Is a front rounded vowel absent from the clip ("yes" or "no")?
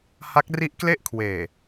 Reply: yes